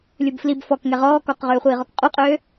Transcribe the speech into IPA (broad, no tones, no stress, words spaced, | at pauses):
lʲubflib fɔk ŋɛʁɔː kɔqʁøːχʷiːʁɔk qʼuqʼøː